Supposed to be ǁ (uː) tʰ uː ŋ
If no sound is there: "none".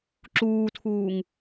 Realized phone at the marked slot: uː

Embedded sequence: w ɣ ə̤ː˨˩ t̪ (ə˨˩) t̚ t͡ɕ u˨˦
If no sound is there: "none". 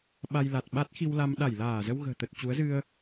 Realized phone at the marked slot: ə˨˩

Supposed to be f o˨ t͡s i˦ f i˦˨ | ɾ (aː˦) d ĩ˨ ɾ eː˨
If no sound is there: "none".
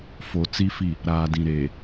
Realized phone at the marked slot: aː˨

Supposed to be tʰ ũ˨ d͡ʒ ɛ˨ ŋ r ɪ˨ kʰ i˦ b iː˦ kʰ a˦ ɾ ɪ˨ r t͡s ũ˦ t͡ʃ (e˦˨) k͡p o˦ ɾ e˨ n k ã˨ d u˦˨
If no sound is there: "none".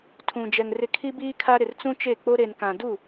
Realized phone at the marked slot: e˦˨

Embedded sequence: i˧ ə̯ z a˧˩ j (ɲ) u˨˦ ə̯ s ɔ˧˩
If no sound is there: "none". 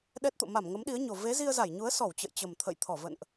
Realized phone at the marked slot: ɲ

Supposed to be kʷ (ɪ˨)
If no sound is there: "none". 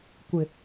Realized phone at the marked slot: ɪ˨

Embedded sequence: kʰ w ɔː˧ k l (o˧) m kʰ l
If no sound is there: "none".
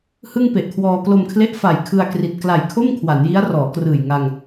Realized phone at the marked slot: o˧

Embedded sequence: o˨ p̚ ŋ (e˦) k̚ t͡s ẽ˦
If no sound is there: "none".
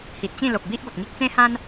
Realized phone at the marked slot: i˦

